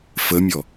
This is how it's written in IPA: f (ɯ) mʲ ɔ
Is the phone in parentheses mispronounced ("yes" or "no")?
yes